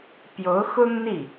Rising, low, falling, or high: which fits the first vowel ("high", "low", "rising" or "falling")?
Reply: rising